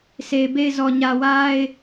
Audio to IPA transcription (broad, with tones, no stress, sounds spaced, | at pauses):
s e˨ ɪ̯ b e˦˨ ɪ̯ z ɔ˨ ɲ ä˨ w a˦ ɪ̯